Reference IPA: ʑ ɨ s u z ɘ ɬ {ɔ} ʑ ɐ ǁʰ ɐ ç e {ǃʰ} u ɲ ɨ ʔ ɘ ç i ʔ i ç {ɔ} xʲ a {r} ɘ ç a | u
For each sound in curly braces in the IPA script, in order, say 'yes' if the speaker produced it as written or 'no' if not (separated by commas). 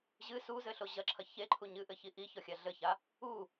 no, yes, yes, no